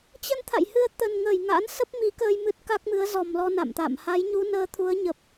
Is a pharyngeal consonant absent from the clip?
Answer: yes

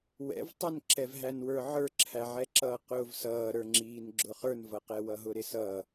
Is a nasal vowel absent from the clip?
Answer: yes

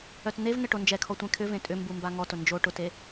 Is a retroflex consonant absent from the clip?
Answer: no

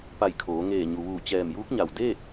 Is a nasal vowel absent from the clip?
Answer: yes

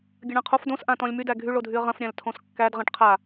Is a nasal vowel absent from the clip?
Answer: no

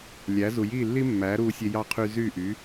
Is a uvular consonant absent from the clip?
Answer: no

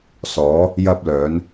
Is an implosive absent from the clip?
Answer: yes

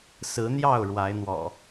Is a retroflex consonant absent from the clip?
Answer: no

